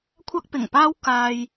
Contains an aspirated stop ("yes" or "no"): yes